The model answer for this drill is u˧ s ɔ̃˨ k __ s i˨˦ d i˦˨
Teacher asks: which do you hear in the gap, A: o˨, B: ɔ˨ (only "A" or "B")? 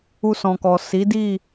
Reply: B